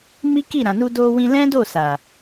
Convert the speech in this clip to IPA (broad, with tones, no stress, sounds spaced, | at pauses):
m i˦ k i˦˨ ɾ ã˨ n u˧ d o˧ w ĩ˧ l ɛ̃˦ d o˦˨ s a˨